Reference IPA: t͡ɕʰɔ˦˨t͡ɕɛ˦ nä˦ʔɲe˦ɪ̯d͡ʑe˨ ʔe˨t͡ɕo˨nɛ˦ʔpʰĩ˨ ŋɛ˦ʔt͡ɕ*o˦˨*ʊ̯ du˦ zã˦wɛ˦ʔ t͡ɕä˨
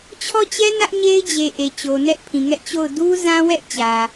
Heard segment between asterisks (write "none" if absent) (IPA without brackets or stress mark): o˦˨